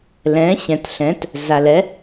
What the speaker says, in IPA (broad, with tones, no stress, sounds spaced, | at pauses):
l ɛ̃˨˥ ɕ ɛ̃˨ t ɬ ɛ̃˨˥ t | z a˨ l ɛ˨˥